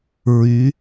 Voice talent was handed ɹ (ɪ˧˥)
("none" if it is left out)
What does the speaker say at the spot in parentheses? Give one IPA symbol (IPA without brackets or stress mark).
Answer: y˧˥